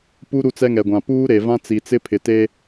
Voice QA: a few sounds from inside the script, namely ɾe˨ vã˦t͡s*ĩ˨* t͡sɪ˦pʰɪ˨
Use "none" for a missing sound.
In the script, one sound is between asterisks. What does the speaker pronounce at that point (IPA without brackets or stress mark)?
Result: i˨